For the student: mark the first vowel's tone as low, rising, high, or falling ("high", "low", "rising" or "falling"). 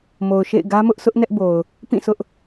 low